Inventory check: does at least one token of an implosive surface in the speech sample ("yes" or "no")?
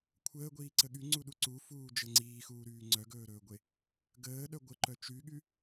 yes